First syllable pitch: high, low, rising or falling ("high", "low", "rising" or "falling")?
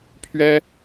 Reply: high